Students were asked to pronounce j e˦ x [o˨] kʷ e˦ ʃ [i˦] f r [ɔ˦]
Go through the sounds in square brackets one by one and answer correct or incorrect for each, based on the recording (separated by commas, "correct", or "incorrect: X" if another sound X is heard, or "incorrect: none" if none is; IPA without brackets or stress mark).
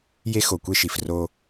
correct, incorrect: i˨, incorrect: o˦